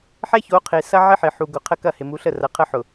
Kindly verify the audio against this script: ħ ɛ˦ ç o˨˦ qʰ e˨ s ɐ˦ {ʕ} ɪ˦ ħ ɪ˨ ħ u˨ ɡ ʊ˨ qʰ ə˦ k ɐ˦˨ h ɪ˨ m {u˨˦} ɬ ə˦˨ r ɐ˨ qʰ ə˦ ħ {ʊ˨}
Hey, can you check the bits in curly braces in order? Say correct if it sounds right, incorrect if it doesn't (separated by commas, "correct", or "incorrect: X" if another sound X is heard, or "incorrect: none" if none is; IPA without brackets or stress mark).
correct, correct, correct